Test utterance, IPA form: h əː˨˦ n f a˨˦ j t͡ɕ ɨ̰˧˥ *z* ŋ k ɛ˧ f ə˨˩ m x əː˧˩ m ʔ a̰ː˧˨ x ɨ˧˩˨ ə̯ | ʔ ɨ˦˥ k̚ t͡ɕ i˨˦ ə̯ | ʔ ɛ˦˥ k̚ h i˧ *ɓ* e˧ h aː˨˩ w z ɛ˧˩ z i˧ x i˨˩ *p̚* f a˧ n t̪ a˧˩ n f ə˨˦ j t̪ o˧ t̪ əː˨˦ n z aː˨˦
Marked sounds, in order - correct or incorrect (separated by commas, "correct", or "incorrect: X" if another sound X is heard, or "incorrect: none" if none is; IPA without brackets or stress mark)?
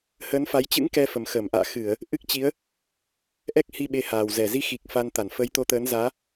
incorrect: none, correct, incorrect: k̚